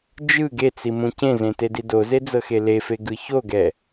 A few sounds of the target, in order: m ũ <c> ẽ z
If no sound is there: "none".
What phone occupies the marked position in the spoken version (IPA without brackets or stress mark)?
c